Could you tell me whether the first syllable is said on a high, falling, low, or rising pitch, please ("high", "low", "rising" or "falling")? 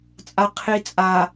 low